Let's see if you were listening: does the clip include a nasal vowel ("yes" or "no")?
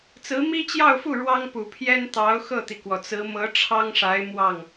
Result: no